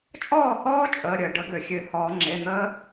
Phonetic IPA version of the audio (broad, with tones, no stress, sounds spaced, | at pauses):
t͡ʃʼ ɔː˥˩ h ɔː˦˥ t͡ʃʼ əː˩˧˩ ɾʲ əː˩ ɖ ə˨˩˦ ɡ ø˩ xʲ ø˨˩˦ h ɔː˨˩˦ ŋ͡ǁ e˩˧˩ n̪ əː˦˥